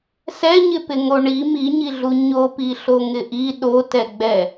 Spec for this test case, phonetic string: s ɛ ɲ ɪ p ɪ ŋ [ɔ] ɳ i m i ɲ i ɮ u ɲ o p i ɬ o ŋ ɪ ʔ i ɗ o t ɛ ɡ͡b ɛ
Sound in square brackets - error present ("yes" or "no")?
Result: yes